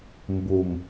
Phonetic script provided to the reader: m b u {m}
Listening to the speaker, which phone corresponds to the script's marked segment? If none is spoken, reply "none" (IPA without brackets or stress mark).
m